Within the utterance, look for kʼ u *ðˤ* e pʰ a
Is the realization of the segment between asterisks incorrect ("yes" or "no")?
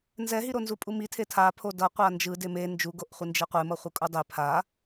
yes